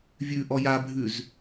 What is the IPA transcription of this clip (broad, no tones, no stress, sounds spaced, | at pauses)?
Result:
vʲ ʉ ʔ ɔ j a bʱ ʉ z